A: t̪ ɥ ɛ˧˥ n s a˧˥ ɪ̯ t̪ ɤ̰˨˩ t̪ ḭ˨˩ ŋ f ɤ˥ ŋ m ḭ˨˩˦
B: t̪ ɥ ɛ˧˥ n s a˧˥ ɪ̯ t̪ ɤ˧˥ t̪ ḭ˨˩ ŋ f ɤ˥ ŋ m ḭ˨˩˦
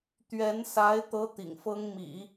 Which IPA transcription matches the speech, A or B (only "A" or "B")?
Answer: B